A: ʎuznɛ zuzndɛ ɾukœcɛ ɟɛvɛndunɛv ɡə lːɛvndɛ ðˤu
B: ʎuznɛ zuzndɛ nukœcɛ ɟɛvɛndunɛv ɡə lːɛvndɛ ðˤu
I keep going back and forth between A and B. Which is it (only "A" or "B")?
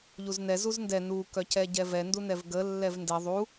B